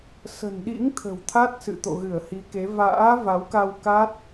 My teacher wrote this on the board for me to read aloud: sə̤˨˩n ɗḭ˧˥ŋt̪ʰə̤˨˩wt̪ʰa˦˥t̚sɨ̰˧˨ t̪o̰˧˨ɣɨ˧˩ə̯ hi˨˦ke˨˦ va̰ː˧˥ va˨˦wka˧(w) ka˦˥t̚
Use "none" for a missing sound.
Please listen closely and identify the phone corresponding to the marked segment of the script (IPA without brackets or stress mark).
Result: w